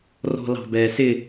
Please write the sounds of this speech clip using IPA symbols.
r ɔ̤ l ɑ̤ b ɛː s ɪ

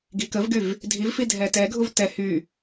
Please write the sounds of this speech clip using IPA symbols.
ɡ i k ə v ɡ y v | dʱ i v f i dʱ ɛ t ɛ ɡʱ u v t ɛ h y

